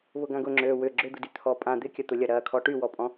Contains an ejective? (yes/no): yes